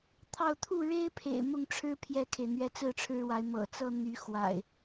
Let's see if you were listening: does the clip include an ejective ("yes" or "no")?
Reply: no